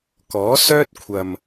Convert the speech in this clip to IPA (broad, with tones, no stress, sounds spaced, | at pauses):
k ɔː˨˥ s œː˥ t̚ kʷʰ ɐ˨ m